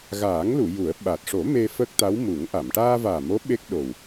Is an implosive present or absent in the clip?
present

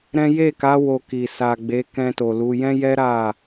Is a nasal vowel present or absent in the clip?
present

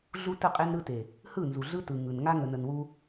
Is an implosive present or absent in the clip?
absent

